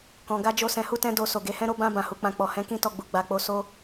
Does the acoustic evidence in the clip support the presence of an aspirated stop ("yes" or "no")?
no